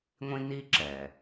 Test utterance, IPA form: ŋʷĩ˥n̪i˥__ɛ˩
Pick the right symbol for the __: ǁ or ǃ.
ǁ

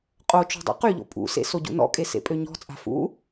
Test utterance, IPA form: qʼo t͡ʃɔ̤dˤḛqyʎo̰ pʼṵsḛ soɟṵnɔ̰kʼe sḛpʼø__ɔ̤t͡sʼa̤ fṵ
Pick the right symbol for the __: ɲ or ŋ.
ɲ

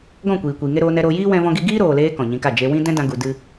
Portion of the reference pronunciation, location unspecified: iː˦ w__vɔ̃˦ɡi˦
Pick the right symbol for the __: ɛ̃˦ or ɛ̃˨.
ɛ̃˦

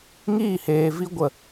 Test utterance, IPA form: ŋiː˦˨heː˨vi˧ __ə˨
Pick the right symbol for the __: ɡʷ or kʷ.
ɡʷ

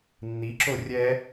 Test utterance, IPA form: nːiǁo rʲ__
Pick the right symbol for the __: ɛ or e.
ɛ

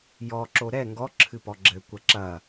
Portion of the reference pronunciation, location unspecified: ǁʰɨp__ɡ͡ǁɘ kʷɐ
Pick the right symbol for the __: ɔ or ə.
ɔ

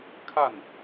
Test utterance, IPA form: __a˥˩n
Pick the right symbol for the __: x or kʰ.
kʰ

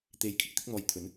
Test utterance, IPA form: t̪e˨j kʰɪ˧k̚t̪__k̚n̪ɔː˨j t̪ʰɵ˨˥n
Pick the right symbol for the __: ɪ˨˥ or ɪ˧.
ɪ˧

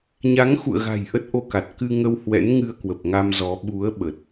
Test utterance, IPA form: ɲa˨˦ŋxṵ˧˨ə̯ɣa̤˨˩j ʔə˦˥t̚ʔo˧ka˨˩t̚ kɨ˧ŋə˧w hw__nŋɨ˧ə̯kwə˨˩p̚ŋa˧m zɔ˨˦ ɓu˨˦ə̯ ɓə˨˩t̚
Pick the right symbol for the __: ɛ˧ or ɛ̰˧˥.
ɛ̰˧˥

